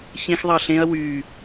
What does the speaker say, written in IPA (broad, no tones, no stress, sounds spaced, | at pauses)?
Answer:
ç ẽ x ðˤ ɑ ɬ ẽ ɐ̯ w y